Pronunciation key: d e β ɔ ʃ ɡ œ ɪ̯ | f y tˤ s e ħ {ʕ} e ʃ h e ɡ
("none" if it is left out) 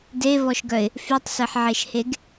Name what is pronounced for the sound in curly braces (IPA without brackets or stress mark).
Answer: ʕ